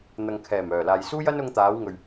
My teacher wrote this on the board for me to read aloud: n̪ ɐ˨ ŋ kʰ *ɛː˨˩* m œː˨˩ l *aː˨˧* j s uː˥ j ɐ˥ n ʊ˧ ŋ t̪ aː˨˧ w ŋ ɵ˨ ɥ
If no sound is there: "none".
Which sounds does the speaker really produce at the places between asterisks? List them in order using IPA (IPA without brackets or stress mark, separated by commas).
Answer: ɛː˨˩, aː˨